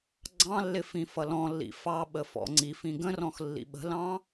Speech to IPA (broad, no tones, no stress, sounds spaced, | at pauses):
ɡ͡ǀ ɑ̃ lː ɪ f ĩ f ʌ l ɔ̃ lː ḭ f ɑ ɓ ə f ɔ̰ ŋ͡ǀ i f ĩ ɡ ə̃ r ɔ̃ x lː ḭ ɓ ə̤ l ɑ̃